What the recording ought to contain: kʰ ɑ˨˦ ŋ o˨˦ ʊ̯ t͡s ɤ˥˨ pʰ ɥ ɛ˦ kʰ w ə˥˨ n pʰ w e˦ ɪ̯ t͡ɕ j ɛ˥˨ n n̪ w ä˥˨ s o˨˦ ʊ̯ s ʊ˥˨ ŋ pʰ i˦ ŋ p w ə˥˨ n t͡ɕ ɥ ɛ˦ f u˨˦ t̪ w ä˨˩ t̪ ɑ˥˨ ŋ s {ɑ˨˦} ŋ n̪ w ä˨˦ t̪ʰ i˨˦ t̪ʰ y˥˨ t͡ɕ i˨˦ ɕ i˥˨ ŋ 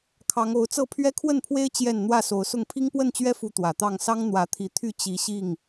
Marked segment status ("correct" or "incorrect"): incorrect